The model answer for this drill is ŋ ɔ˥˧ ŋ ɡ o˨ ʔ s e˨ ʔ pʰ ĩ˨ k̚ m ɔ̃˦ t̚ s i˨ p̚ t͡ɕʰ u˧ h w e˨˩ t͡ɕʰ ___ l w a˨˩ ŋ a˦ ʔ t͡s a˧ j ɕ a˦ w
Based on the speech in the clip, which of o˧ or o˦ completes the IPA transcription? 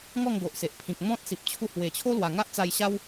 o˦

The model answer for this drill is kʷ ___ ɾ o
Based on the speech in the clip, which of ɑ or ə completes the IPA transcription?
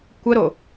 ə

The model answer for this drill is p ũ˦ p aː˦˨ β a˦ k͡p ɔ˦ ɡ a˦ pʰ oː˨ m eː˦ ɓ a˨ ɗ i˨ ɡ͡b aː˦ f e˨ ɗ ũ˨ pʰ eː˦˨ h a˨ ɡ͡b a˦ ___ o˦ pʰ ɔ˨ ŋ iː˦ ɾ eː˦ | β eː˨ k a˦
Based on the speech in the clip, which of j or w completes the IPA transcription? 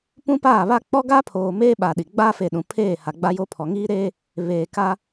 j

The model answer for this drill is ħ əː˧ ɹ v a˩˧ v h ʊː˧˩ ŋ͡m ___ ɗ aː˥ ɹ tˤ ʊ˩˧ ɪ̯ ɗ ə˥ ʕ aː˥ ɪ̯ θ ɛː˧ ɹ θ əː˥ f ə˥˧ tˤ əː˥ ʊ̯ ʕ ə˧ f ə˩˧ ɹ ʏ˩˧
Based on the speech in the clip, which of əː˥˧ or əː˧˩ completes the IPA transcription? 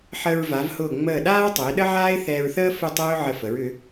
əː˧˩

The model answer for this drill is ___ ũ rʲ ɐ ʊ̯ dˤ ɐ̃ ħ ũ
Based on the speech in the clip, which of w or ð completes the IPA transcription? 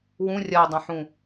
w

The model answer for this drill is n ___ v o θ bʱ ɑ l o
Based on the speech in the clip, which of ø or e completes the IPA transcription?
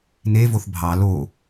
e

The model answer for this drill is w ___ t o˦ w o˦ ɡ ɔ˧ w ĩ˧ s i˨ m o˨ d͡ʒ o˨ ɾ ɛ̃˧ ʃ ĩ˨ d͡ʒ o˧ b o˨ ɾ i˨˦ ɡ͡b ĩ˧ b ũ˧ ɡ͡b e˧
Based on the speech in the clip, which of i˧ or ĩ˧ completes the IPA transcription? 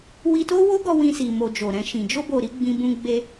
i˧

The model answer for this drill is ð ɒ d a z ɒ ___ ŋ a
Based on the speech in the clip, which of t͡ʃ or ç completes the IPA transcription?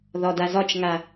t͡ʃ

